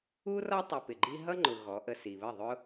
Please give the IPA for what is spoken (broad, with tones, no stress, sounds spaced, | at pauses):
u˦ r ɒ˦ tˤ ʊ˧ p ɪ˨ ɡ͡ǃ i˦ ɦ ʌ˦ ŋ͡ǃ ʊ˨ ɣ ɔ˨˦ ʔ ə˧ s i˨ β ə˦˨ ðˤ ʊ˦